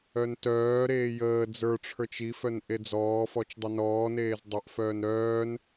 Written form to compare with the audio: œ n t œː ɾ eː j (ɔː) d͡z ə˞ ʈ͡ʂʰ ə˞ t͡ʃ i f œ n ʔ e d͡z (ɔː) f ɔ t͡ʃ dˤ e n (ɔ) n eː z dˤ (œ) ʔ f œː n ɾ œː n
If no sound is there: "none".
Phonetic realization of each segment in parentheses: əː, ɔː, ɔː, œ

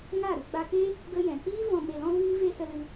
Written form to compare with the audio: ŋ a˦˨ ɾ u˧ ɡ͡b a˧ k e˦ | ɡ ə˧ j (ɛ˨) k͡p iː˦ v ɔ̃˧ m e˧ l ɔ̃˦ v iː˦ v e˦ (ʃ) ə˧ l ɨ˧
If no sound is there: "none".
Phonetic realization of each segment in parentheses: ɛ̃˨, s

